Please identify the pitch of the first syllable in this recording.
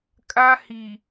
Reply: high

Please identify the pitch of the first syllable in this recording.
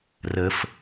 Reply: low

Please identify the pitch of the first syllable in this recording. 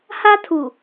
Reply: high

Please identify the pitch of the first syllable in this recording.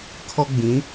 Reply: high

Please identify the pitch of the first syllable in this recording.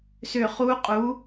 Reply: falling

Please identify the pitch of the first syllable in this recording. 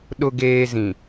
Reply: low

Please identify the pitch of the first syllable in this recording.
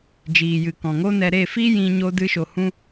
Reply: low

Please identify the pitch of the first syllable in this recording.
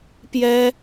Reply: high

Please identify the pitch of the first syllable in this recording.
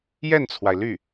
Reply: falling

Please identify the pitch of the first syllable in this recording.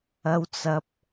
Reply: low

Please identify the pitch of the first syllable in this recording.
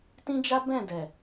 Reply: high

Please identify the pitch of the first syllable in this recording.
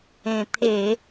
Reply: low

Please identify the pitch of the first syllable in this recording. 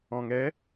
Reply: low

